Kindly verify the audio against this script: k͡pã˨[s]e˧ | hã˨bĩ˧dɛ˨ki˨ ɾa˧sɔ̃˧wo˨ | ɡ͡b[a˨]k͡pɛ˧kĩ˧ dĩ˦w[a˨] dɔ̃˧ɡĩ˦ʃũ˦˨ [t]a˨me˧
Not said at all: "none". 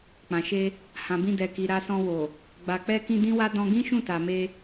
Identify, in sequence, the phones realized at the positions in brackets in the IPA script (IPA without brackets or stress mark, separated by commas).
ʃ, a˨, a˦, t